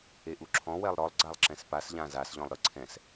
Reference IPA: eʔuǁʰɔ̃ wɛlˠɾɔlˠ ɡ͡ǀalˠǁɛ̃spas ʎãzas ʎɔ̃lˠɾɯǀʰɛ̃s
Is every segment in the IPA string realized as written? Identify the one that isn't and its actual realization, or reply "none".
none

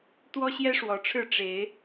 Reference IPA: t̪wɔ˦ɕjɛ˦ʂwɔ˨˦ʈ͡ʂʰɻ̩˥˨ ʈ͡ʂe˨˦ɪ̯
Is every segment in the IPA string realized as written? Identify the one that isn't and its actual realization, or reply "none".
none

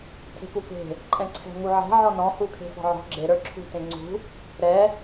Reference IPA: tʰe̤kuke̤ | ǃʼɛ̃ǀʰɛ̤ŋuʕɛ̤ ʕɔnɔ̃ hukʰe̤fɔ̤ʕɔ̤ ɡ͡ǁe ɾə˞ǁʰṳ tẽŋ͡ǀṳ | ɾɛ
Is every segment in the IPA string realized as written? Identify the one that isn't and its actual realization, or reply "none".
none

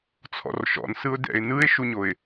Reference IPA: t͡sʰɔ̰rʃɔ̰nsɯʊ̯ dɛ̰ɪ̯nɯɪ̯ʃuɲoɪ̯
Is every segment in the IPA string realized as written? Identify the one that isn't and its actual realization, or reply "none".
none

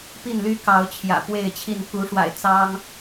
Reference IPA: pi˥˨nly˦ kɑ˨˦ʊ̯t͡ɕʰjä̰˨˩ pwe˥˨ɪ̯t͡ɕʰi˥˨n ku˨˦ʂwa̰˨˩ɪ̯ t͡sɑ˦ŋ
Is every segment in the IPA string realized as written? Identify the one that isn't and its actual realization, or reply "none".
none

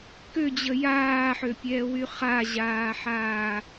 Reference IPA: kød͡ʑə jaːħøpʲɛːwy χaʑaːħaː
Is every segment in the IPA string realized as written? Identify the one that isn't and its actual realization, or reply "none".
none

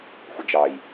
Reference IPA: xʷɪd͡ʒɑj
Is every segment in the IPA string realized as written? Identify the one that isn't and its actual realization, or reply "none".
none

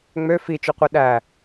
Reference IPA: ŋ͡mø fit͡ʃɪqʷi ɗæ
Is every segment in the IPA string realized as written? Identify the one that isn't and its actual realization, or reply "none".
ɪ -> y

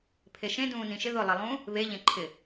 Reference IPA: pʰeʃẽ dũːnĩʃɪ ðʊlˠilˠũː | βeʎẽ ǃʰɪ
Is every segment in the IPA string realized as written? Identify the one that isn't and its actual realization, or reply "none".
none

